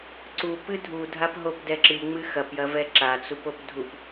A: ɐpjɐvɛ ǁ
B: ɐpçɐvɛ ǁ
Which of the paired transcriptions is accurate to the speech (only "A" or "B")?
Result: A